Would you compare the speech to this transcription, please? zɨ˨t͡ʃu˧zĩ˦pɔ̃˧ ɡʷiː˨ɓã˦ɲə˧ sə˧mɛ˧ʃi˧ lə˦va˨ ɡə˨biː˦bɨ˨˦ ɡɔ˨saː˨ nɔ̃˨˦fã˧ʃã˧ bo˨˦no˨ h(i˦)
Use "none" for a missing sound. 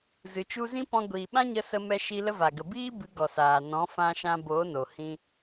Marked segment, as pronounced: ĩ˦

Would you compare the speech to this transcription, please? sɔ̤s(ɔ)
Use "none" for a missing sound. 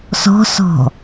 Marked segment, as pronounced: ɔ̤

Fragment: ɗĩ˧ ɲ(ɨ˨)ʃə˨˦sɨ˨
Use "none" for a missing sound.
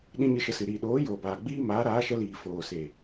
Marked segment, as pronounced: ɨ˧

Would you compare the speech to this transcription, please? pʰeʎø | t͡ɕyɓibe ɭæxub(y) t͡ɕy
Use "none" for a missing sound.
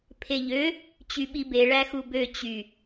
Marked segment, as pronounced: ø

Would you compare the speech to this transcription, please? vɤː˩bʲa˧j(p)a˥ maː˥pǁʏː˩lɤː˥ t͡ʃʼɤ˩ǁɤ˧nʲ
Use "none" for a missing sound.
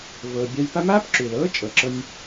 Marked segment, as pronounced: p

